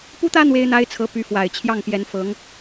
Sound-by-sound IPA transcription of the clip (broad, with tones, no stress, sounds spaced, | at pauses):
p u˥ t̪ ä˥ n̪ w e˥ ɪ̯ n̪ a˥ ɪ̯ t͡sʰ ɤ˧˥ p y˧˥ f w a˨˩ ɪ̯ t͡ɕʰ j ɑ˥˩ ŋ p j ɛ˧˥ n f ɤ˧˥ ŋ